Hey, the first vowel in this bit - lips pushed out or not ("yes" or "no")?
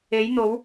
no